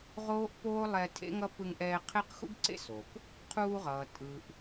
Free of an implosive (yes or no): yes